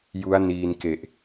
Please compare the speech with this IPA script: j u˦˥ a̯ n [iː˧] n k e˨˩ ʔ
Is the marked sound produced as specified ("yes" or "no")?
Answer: yes